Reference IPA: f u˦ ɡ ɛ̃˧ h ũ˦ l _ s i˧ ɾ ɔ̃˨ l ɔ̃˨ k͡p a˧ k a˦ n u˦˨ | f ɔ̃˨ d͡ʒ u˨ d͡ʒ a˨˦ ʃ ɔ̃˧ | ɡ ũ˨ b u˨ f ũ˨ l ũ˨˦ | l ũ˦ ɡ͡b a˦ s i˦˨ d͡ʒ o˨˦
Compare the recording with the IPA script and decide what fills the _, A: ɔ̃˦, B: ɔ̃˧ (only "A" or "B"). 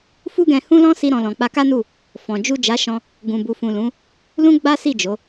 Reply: A